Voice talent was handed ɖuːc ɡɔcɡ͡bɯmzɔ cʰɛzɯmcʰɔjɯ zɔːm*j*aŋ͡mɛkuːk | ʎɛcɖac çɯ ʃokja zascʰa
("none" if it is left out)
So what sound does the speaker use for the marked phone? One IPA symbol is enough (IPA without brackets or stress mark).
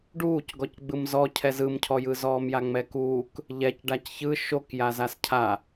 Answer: j